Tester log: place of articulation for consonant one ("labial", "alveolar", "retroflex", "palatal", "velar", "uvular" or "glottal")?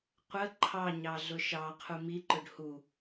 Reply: uvular